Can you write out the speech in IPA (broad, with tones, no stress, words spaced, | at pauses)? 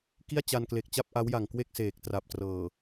ki˥˩a̯t͡ɕa˧nkle˨˩k̚t͡ɕa˥˩p̚ ʔa˦˥wja˨˩ŋ kwe˥˩k̚seː˨˩k̚ tra˨˩p̚trɤː˨˩